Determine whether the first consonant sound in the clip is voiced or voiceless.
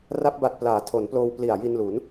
voiced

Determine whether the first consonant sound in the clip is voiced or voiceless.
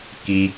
voiceless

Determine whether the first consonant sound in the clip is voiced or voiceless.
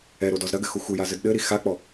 voiced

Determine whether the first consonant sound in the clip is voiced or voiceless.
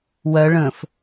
voiced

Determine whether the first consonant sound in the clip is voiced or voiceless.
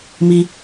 voiced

